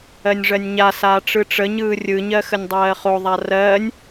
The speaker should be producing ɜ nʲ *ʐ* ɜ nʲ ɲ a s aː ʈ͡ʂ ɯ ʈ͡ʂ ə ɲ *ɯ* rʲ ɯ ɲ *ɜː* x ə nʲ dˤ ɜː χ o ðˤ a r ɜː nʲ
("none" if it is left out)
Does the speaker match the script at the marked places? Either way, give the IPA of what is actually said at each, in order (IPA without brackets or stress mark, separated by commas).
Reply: ʐ, ɯː, ɜ